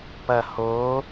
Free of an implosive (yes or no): yes